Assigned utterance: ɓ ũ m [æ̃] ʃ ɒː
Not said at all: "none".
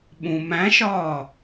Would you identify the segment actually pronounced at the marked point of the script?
æ̃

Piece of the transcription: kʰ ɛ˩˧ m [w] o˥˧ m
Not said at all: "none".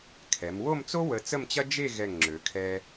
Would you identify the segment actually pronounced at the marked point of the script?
w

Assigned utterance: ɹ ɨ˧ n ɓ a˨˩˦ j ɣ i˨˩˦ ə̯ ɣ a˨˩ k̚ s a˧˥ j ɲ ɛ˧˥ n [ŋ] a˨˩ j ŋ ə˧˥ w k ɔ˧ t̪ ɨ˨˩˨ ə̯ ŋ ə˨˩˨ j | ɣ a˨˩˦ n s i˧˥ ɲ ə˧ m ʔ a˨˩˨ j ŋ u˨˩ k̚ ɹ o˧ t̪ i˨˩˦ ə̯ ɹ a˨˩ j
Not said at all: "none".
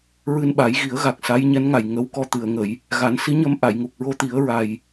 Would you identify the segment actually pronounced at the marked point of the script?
ŋ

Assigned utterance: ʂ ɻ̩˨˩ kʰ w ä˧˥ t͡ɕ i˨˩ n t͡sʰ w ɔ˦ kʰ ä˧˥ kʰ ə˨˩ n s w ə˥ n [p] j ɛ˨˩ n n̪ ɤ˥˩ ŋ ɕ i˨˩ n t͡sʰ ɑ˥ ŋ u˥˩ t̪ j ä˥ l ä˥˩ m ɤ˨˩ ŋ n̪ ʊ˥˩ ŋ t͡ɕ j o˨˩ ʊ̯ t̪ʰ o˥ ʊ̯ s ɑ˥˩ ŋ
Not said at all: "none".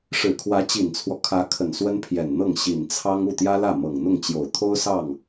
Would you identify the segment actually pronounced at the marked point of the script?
pʰ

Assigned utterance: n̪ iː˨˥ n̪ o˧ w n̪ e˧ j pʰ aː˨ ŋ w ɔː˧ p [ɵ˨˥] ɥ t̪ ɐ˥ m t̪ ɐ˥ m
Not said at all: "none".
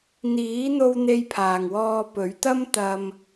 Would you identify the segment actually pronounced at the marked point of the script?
ɵ˨˥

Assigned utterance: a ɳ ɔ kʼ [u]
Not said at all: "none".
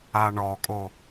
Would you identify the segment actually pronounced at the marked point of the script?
o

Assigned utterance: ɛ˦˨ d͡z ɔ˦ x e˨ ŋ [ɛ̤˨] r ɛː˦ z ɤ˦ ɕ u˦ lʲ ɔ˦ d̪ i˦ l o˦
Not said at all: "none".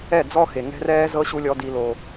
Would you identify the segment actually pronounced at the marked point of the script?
ɛ̤˦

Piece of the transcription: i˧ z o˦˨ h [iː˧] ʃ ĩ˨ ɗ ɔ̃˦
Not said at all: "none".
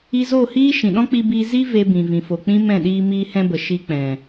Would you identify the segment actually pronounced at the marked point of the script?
iː˦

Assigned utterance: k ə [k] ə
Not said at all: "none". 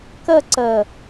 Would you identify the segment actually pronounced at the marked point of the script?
ǀ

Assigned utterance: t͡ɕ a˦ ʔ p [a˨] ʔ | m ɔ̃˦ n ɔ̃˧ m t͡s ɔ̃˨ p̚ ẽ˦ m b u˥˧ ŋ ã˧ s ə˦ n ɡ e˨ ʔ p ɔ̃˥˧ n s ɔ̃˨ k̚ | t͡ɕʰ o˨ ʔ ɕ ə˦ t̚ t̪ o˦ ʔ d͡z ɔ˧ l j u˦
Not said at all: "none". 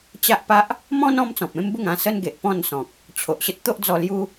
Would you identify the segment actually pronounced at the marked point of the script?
a˦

